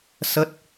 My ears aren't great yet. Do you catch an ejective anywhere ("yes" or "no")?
no